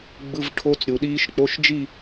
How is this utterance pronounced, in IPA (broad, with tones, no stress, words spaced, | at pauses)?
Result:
ɡ͡bɯ˧˥˧vʈʰo˦˥t͡sɾʲu˨ɗiː˦˥ʃ k͡po˧˥˧ʃd͡ʒi˥˧